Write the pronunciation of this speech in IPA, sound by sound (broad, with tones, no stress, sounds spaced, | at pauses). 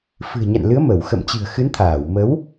f ɨ̤˨˩ ə̯ ɲ a̰˧˨ n l ɨ˨˦ ə̯ m ə˧˩ w x ə̰˧˨ m t͡ɕ ɨ̤˨˩ ə̯ x ɨ˨˦ n t̪ʰ aː˧˩ w m ə˨˦ w